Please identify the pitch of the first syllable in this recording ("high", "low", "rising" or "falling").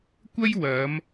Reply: high